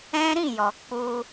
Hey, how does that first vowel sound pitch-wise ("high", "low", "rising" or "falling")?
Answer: high